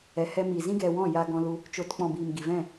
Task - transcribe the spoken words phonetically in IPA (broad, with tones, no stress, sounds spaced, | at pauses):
ɛ˨ h ɛ˧ m i˨ z ĩ˦ ɡ ɛ˧ w ɔ̃˦˨ j aː˧ ɡ ɔ̃˧ l u˧ | t͡ʃ o˨ t k͡p ɔ̃˨ b iː˨ m ɡ i˨ v ɛ̃˦˨